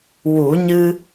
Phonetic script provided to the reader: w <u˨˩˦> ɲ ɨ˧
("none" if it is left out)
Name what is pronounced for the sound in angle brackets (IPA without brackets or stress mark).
u˨˩˦